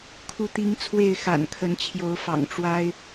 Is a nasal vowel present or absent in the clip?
absent